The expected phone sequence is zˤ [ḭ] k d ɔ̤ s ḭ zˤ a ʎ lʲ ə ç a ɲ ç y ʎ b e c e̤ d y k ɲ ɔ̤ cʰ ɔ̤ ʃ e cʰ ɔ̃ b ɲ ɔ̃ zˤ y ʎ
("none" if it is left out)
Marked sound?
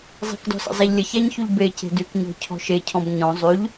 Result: i̤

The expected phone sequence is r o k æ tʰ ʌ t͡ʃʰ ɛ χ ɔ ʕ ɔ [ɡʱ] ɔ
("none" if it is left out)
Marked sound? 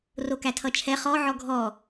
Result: ɡʱ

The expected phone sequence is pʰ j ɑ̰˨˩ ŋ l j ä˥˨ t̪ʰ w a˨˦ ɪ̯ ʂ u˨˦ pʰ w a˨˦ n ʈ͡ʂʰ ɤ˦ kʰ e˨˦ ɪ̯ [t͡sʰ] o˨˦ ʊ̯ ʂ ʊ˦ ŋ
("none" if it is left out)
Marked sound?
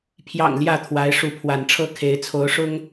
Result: t͡sʰ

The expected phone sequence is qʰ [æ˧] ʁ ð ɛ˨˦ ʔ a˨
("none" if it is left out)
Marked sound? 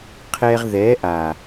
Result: ɛ˧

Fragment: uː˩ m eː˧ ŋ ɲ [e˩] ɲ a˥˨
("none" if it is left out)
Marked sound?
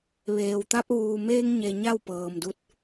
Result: e˩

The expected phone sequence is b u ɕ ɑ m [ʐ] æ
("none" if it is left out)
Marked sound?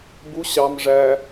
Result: ʐ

